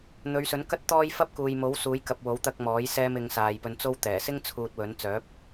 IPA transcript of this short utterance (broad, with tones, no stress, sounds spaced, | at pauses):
n̪ ɵ˨˧ ɥ s ɵ˨˥ n k ɐ˥ t̚ t̪ ɔː˥ j f ɐ˥ p̚ k uː˨ j m o˨˥ w s uː˨˥ j k ɐ˨ p̚ w o˨˥ w t̪ ɐ˧ k̚ m ɔː˨˥ j s ɛː˧ m ɪ˨ ŋ s aː˨ j p ɵ˧ n t͡s o˥ w t̪ ɛː˨˩ s ɪ˥ ŋ t͡sʰ uː˧ t̚ w ɵ˨˥ n t͡s œː˨˥ p̚